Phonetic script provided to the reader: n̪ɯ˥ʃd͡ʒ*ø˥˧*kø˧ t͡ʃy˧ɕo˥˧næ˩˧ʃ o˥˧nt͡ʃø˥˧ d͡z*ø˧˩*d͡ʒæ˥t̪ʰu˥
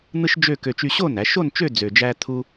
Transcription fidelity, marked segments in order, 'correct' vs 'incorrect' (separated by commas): correct, incorrect